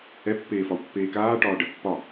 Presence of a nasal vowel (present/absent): absent